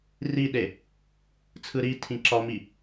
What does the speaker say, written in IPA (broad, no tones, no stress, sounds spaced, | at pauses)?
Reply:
r i ɗ e | t͡sʰ ɯ ɾ i tʰ ĩ ǁ ɒ m i